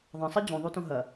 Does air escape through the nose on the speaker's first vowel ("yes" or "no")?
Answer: yes